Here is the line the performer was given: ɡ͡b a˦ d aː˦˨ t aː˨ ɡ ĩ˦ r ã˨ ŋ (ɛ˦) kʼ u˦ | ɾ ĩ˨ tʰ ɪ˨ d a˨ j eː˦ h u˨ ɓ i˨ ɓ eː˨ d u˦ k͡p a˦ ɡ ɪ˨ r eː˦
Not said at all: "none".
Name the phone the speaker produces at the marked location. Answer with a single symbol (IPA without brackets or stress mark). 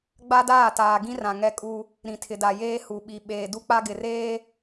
ɛ˦